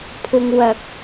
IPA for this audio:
pʰ ʊ˧ ŋ w ɐ˧ k̚

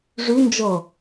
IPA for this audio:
ʐ y n d͡ʒ ɤ

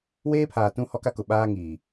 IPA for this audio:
w eː˦ pʰ aː˨ t ũ˦ h ɔ˦ k a˦ k ʊ˨ ɓ aː˦ ŋ iː˨

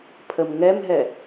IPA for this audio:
pʰ ə m ŋ ɛ m ɦ ɛ

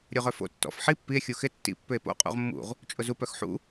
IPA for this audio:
ɾʲ o ʁ œ f o̰ tː ɔ̰ f ħ i pː i e̯ xʲ u x ɪ tː ḭ pː ʏ e̯ p o̰ qʼ ṵ ʁ mː ṵ ʁ | t͡ʃʼ ʊ z u p œ x ħ ṵ

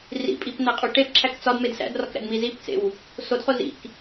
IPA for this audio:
r ḭ pʼ i p n æ qʼ u ʈ e p ǁʰ æ k t͡s ɒ d m e d s æ̰ d r ɒ k ɾ æ̰ d m i z i p t͡s ḛ w | s o d χ o z ḭ k

